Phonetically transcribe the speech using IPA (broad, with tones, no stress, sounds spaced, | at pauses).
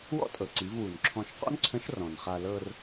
w ɔ̰˥ tʼ ɤ˩ ǀ i˩˧ v w u˩ n ǁʰ ɔ̃˧ ʃ q ɔ̰˥ n ǀʰ ə̃˧˥ ʃ r ɔ̃˩ n χ a˧ l ɤ˧ r